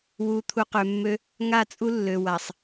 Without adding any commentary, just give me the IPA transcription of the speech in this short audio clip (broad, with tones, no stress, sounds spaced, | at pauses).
w u˨ t̪ʰ u˨ q ø˨ mː ø˦ | ŋ a˦˨ t͡sʼ u˦ lː ø˨ w a˨ sˤ